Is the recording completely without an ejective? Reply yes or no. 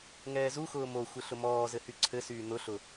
yes